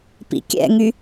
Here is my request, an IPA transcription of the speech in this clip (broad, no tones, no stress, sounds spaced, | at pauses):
p ḭ kʲ ɛ̰ ŋ y